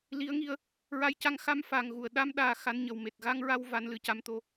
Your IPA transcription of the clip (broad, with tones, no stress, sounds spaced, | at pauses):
l i˧˥ ə̯ ŋ i˧ ə̯ | ɹ a˧ j c a˧˥ ŋ x a˧˥ m f a˨˩ ŋ ɣ u˨˩˨ ə̯ ɗ a˧ m ɗ aː˨˩ x a˧˥ n ɲ ə˨˩ w m e˨˩ t̚ ɣ a˧ ŋ ɹ a˧ w v a˧˥ n l ɨ˨˩˦ c a˧˥ m t̪ o˧˥